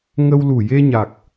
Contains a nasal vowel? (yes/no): no